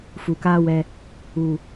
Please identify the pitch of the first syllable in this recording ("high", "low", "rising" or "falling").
low